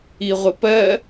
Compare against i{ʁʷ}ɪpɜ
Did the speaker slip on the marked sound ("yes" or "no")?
no